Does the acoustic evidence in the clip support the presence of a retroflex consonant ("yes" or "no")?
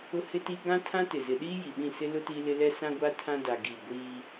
no